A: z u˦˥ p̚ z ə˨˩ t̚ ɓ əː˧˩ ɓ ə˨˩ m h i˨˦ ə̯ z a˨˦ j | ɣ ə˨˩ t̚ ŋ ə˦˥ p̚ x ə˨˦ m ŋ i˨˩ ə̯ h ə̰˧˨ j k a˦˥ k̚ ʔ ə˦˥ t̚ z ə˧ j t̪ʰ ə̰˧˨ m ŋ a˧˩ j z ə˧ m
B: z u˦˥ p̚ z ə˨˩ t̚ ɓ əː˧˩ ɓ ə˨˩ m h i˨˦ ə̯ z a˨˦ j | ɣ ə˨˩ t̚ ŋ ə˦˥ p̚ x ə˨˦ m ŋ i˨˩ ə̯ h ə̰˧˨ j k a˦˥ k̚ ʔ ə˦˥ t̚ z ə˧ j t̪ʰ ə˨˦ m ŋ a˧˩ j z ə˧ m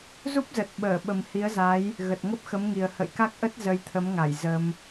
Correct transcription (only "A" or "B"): B